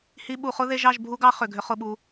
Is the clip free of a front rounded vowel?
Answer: no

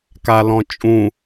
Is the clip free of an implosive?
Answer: yes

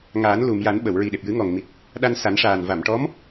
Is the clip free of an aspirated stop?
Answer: yes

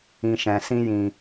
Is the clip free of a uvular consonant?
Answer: yes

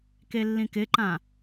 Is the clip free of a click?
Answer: no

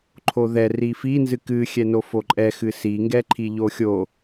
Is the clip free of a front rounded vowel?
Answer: yes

